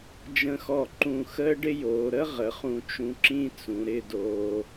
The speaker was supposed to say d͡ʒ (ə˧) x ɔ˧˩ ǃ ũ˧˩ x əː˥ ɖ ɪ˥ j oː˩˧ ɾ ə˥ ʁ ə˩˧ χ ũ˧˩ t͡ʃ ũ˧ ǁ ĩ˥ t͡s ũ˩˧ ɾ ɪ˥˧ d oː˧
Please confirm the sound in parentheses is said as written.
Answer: no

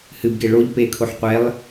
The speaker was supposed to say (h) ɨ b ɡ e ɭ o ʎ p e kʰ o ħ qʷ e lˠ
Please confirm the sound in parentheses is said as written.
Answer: yes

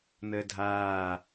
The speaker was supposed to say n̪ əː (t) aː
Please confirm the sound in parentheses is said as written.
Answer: no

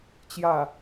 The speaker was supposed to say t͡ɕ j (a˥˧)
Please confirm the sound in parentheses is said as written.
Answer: no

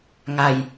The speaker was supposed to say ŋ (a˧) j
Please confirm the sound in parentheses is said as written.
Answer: yes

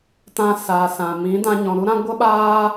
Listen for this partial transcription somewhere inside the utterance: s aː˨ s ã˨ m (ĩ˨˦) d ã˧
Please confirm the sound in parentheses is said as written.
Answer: yes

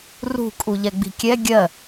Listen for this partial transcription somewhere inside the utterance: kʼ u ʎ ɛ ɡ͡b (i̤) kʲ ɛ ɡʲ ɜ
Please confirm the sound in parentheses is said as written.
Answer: yes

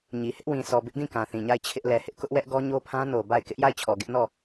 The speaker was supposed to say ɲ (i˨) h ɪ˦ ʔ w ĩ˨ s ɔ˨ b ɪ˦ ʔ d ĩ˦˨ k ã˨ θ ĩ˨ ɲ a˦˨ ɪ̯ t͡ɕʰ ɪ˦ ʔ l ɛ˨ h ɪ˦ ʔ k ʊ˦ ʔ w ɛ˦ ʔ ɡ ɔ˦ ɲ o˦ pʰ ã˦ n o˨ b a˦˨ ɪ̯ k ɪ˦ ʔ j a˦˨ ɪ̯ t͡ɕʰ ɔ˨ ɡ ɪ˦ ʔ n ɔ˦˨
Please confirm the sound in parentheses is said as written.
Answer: yes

